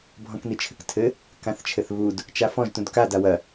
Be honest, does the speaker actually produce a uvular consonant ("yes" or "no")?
no